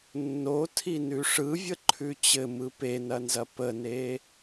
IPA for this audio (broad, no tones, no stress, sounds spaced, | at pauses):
nː o tʰ i n ʉ ʂ ɯ vʲ ə ǃʰ ʉ t͡ɕ ɘ m ɯ p e n ɐ n z ɐ p ə n e